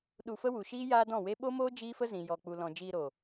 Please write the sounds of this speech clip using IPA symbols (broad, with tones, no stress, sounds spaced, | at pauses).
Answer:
ɗ u˧ f ə˦ w u˨ ʃ iː˦ j aː˦ d ɔ̃˦˨ w e˦ ɓ o˦ m oː˦ d͡ʒ iː˦ f ə˦ z ĩ˨ j ɔ˨ k͡p u˨ l ɔ̃˨ d͡ʒ iː˧ ɾ o˨